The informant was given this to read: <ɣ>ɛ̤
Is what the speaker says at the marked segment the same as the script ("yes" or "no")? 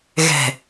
yes